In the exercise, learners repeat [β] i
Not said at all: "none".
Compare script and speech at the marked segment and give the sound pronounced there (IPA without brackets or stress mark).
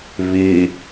β